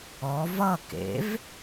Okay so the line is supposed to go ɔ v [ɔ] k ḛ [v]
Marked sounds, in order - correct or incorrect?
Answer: incorrect: ʌ, correct

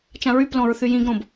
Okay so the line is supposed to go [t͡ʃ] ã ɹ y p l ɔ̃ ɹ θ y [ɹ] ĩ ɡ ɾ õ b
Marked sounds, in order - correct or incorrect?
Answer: correct, incorrect: j

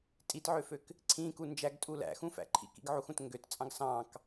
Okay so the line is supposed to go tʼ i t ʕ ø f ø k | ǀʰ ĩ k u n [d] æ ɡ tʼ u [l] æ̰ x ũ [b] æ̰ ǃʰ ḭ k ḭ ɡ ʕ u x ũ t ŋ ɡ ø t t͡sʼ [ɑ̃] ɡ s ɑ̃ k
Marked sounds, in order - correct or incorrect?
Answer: incorrect: d͡ʒ, correct, incorrect: f, correct

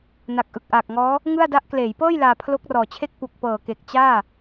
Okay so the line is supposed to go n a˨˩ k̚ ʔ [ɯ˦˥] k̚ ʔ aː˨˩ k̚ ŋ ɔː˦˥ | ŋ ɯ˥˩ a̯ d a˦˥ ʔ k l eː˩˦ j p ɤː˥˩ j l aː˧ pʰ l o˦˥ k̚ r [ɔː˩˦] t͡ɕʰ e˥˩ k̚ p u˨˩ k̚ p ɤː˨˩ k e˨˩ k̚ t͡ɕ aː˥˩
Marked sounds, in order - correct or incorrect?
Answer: incorrect: ɯ˨˩, incorrect: ɔː˨˩

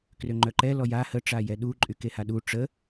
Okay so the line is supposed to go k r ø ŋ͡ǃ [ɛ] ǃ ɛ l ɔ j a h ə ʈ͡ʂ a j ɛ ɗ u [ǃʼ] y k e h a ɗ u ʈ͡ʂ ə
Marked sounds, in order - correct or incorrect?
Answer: incorrect: œ, correct

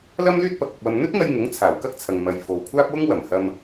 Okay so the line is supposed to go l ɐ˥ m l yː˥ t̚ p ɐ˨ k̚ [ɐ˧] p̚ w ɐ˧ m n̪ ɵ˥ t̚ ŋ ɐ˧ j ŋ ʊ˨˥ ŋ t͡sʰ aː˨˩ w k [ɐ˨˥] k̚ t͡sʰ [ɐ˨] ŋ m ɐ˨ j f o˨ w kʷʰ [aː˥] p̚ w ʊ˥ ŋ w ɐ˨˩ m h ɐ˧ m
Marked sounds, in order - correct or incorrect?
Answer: correct, incorrect: ɐ˥, correct, correct

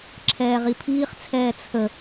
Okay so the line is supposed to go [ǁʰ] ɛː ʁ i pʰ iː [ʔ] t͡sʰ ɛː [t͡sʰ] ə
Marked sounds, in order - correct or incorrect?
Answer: correct, incorrect: χ, correct

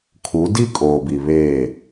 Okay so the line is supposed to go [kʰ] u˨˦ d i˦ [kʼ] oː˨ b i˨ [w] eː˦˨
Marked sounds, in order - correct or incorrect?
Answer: correct, correct, incorrect: β

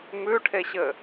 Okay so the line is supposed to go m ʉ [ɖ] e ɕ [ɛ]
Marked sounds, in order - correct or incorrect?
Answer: incorrect: ʈʰ, incorrect: ɘ

